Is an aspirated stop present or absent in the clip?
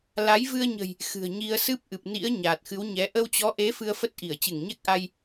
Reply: absent